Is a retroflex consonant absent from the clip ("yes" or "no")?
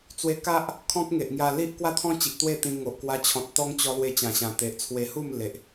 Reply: yes